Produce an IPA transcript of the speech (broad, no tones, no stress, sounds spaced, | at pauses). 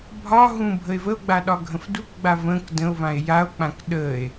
bʱ ɒ ɦ ũ bʱ ə e̯ v ə o̯ ɡ͡b a ɗ ɒ ɡʱ ə̃ f d u k ɡ͡b a v ə̃ k d ə̃ o̯ v ã e̯ j a o̯ k͡p ã k ɗ ə e̯